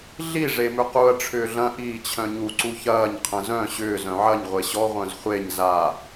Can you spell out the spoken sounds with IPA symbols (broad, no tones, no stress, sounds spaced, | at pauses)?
ɮ i ʐ e m ʏ q u ɐ̯ ʈ͡ʂʰ ʏː ɮ ɐ̃ ʔ iː t͡ɕʰ œ̃ ɲ u ǀ u ç ɐː ɲ qʰ ə̃ z œ̃ ɕ ʏː z œ̃ ʕ ɐ ɲ ʁʷ e ɕ ɔ ʁʷ œ̃ z χʷ e ɲ z a